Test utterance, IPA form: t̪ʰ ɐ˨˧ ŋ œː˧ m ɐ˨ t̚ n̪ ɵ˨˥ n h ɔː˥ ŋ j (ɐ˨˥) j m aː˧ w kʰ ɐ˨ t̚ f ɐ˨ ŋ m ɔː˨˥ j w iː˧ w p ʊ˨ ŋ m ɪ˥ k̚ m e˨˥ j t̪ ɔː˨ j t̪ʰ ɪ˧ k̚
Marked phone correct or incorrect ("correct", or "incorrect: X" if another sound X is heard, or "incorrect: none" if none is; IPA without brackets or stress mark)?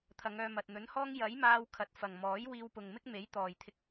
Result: correct